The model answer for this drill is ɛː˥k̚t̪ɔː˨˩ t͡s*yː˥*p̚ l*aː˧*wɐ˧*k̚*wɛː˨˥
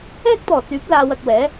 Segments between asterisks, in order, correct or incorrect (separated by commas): incorrect, correct, correct